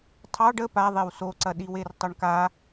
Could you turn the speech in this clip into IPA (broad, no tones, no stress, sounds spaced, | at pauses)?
tʰ ɑ ɖ ə p a ðˤ e w s o ǀ ɐ ɗ i w e r tˤ ɐ ɳ k a